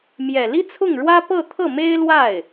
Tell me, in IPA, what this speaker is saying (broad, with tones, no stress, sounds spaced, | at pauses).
m j ɛ˨˩ l i˥ t͡sʰ ʊ˥˩ ŋ ɻ w ä˥ p ɤ˥˧ t̪ʰ ɤ˥˩ m e˥ ɪ̯ l w a˥˩ ɪ̯